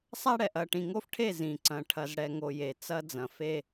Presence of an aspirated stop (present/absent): present